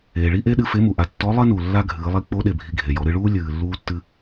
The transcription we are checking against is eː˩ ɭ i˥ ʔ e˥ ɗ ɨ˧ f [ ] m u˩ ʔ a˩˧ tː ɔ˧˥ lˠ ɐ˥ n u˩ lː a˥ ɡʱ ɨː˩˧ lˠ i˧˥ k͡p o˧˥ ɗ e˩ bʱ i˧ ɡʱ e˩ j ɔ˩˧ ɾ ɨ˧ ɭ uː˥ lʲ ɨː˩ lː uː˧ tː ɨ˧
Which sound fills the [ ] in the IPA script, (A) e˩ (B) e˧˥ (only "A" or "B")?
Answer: B